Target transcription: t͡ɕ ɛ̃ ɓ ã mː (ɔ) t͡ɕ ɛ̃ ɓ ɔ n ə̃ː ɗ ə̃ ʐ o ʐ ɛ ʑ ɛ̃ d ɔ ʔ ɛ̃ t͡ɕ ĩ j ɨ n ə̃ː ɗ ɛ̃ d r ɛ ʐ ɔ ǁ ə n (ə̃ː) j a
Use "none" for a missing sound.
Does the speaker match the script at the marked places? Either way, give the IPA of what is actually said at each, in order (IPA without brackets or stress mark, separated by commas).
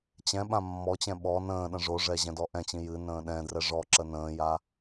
ɔ, ə̃ː